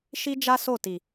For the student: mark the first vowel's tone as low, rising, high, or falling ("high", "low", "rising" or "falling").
high